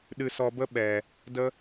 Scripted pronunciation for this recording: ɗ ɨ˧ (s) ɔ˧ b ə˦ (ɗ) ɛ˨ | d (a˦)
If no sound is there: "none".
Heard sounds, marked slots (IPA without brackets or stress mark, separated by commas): s, ɓ, ə˦